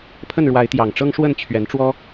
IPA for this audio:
pʰə˥˨nɻwa˨˦ɪ̯ t̪jɑ˨˩ŋʈ͡ʂɤ˦ŋʂwə˥˨n t͡ɕʰɥɛ˨˦nʈ͡ʂwɔ˦

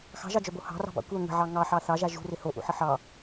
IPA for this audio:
xɑ̤ʒɑd͡ʒœbo hɑ̤rɑ̤bɑ̰ kʷœ ŋə̤ʕɑ ŋɑħɑ θɑʒa ʒṳrɪ hoʔṵħə ħɑ

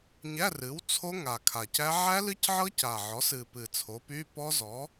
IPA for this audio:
ɲæ˧˥˧rɨ˩˥w t͡sʰo˦˥ ŋa˨˩kʰa˨˩cæ˦˥ ʕæ˦˥lɨ˦˥cʕɤ˦˥ ca˨˩ʕɔ˩˥sɨ˨˩pɨ˨˩ t͡sʰo˩˥py˧˥˧pɔ˦˥zɔ˩˥

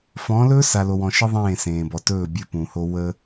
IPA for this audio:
fɔ̃ː˨˦lɵː˦sa˨ lo˨wɔ̃˨ʃə˦ ðˤẽː˦˨ sẽː˨ bɔ˨tɵː˦˨bʲəː˦ pũ˨ho˦ wə˦

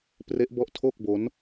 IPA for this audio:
pre˦˥ʔbɔ˦˥ʔtʰo˥˩k̚ bo˦˥n

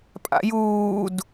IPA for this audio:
pʼa̰juːd

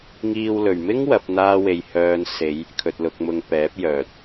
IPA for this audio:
ŋiː˧wlɵ˨ɥmɪ˥ŋ wɐ˨˥p̚n̪aː˥we˧j hœː˧n se˨˧j | kʰɵ˧t̚lʊ˧k̚mʊ˧ŋ pɛː˨˥p̚jœː˨t̚

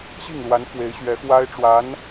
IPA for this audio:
ɕi˥˩ŋlwa˧˥n fwe˧˥ɪ̯ɕɥɛ˧˥xwa˥ɪ̯ʈ͡ʂwa˧˥n

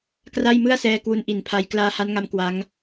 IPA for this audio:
kra˥˩jmɯ˥˩a̯sɛː˧ kwu˥˩n ʔi˨˩npʰa˧j klaː˧ha˦˥nŋa˧m kwa˦˥ŋ

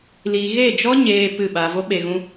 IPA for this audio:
li˨ɣe˦˨d͡ʒɔ˦ɲeː˨ pɨ˦˨ɓa˧ vo˦ ɓe˧ɣũ˦

